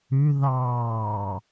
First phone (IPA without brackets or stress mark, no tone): ʉ